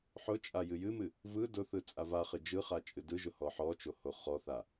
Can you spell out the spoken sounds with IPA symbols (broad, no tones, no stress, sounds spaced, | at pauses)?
ħ ʊ t͡ʃʼ a j ɨ j ɨ m ɨ | v ɯ d ʊ θ ɯ t͡sʼ a v a χ ɨ d͡ʒ ɯ χ a t͡ʃʼ ɨ d ɯ ʒ ʊ h ɔ ħ ɔ t͡ʃ o h o χ ɔ θ a